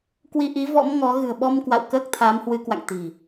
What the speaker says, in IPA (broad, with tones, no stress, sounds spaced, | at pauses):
k w i˧ ʔ i˨˦ v ɔ̰˧˥ m ŋ ɔ˨˦ ɣ ɨ̤˨˩ ə̯ ɓ ɔ˧ m k w a̰˧˨ w k əː˦˥ k̚ t̪ʰ aː˨˦ m h w ɨ˨˦ k w a̰˧˨ ŋ t̪ i̤˨˩